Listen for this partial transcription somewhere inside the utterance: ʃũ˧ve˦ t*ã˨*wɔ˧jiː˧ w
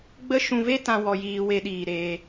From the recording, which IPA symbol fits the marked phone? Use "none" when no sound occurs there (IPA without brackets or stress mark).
ã˦